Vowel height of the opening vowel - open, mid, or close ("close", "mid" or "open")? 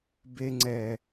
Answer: mid